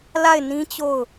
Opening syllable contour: falling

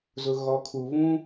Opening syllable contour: low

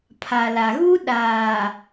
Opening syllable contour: low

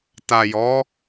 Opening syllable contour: low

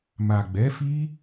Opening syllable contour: low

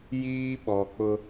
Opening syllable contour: high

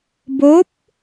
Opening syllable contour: rising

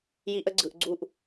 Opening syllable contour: high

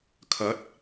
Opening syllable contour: rising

